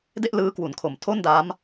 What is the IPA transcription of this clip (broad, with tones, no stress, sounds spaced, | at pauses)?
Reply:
d e˥˩ ʔ l ɯː˦˥ k w u˨˩ n kʰ o˨˩ m tʰ o˥˩ n d a˦˥ m